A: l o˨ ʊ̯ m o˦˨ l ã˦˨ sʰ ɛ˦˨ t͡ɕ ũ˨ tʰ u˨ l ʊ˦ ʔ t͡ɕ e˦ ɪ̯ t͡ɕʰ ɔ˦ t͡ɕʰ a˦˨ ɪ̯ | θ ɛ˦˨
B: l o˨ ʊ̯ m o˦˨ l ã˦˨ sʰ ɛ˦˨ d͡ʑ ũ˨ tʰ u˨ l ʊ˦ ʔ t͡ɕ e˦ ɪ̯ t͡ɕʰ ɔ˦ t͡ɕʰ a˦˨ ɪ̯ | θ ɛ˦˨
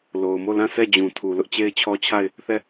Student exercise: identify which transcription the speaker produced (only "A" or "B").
B